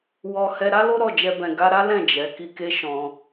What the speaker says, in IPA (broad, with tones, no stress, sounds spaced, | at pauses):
w ɔ˧ h ɛ˧ ɾ a˦ l o˦ ɾ ɔ˦˨ d͡ʒ ɛ˧ b ɛ̃˨ ɡ a˧ ɾ a˦ l ɛ̃˦˨ d͡ʒ ɛ˨˦ k i˧ k e˦ ʃ ɔ̃˧